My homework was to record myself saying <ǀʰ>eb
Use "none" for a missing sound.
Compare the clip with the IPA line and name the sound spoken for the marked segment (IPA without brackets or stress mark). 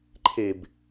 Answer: ǃʰ